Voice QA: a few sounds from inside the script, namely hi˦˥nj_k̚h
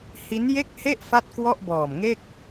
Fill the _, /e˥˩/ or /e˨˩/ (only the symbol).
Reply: e˥˩